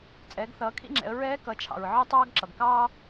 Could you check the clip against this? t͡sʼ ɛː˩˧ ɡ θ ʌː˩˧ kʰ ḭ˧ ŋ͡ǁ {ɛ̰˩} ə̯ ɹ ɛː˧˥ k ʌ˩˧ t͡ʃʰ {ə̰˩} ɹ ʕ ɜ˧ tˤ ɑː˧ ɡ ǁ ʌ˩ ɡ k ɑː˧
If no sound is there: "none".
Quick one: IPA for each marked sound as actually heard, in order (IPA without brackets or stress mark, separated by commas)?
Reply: ɛ̰˩˧, ɑ̰˩